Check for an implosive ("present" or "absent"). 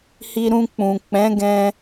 absent